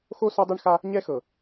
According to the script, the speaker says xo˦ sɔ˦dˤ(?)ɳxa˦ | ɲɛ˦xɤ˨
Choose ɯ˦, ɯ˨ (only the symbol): ɯ˦